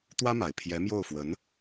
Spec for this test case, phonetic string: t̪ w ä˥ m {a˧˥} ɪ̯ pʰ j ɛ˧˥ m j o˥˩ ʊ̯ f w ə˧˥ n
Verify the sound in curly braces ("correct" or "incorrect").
incorrect